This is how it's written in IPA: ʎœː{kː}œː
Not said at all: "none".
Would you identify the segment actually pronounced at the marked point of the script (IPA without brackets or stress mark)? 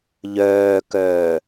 k